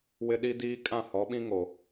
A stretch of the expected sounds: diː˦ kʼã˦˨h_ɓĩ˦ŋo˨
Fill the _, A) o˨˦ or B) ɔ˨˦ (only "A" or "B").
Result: B